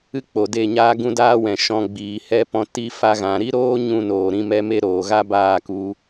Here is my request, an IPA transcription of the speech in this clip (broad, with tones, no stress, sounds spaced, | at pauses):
ɨ˦ k͡p o˨ d e˦˨ ɲ aː˦ ɡ ũ˦ d aː˦ w ɛ̃˨ ʃ ɔ̃˧ ɡ͡b iː˨ h ɛ˧ p ɔ̃˧ t i˧ f a˧ ɣ ã˨ ɾ i˦ ɾ oː˦ ɲ ũ˧ n oː˨ ɾ ĩ˧ m ɛ˧ m e˦ ɾ oː˨ ɣ a˦ b aː˦˨ k u˧